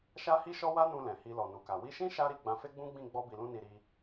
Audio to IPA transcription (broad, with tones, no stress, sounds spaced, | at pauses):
ʃ a˦ h i˦ ʃ ɔ˦ w a˦ n ũ˧ l ɛ̃˨ h i˧ l ɔ˨ n u˨ k a˨ w i˧ ʃ ĩ˦ ʃ a˦ ɾ i˦˨ ɡ͡b ã˧ f e˦ ɡ͡b ũ˦ ɡ͡b ĩ˦˨ ɡ͡b ɔ˧ b i˨ l ũ˧ n i˨ ɾ i˧